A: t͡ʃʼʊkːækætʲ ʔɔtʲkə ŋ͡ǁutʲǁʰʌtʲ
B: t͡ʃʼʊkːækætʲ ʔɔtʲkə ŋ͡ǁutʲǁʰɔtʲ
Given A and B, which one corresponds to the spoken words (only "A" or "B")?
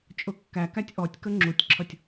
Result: A